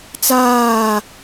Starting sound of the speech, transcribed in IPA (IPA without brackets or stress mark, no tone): t͡s